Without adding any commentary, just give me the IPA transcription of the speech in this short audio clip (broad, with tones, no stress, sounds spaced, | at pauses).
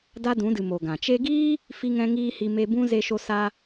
d a˦ d ũ˨˦ d ɨ˨ m o˨ ɡ ã˨ t͡ʃ e˧ ɡ iː˦ | f i˦ ŋ ɛ̃˦ ŋ iː˦ h i˧ m e˧ b ũ˦ z e˧ ʃ o˧ s a˧